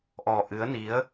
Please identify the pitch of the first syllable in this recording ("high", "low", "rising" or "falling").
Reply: low